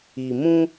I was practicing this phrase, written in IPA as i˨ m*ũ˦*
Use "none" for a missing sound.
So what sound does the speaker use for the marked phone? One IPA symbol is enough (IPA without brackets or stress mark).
ũ˦